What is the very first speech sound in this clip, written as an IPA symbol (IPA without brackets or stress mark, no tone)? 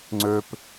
ŋ͡ǀ